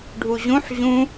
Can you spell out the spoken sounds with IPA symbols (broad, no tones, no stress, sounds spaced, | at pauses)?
ɖʱ u ʑ ũ ħ ʑ ũ